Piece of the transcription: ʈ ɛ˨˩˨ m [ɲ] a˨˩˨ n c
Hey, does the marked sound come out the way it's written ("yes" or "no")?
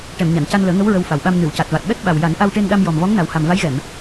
yes